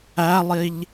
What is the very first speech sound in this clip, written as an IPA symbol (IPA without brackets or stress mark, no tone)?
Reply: æ